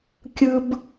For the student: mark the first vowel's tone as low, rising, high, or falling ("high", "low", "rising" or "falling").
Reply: high